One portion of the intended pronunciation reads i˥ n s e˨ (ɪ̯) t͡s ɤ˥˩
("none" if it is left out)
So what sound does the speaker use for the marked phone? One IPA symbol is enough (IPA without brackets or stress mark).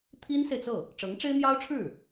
ɪ̯